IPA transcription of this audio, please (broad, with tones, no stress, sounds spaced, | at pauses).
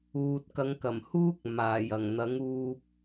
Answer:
uː˨ t̚ k ɐ˨˧ ŋ k ɐ˨˩ m h uː˥ k̚ m aː˨˩ j ɐ˨˩ ŋ n̪ ɐ˨˥ ŋ uː˧ p̚